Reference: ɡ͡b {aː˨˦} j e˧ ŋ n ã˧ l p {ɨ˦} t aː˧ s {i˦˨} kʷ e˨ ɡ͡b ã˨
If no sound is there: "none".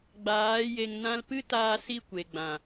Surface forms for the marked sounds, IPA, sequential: aː˨˦, ɨ˦, i˦˨

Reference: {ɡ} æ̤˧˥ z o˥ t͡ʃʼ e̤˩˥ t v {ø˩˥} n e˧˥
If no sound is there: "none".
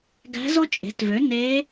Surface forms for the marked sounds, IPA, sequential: ɡ, ø˩˥

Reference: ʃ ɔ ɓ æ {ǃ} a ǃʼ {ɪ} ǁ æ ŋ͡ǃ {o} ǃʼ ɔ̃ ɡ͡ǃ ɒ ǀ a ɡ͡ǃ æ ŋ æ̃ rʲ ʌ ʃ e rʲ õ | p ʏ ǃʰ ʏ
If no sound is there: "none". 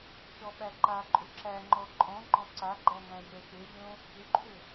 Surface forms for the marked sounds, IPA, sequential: ǃ, ʏ, ɔ

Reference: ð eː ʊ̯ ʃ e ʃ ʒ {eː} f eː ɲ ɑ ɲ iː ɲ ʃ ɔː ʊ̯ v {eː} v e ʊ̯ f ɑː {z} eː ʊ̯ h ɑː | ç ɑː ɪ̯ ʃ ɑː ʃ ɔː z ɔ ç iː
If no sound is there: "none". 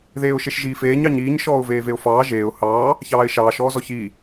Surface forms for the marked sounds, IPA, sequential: iː, eː, ʒ

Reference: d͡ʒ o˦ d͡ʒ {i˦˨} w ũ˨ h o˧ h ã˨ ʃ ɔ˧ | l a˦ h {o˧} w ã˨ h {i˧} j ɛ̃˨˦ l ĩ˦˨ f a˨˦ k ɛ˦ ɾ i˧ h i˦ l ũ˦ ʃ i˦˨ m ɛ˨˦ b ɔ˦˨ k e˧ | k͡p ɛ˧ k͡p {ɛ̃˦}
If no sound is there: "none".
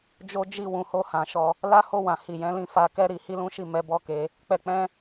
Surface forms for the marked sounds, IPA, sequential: i˦˨, o˦˨, i˨, ɛ̃˦

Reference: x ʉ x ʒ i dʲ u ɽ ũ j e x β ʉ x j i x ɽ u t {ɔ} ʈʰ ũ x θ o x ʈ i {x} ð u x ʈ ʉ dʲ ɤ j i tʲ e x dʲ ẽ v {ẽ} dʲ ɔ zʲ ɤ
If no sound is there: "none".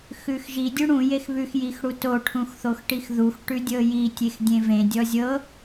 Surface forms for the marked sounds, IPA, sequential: o, x, ẽ

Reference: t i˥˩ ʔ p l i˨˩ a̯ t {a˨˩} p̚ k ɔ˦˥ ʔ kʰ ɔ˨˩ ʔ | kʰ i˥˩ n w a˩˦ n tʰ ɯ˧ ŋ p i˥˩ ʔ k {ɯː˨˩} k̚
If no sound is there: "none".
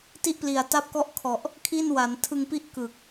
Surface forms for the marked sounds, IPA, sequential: a˦˥, ɯː˨˩

